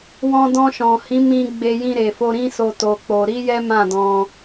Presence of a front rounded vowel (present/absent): absent